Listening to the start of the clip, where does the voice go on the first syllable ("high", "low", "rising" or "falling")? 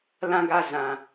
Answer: high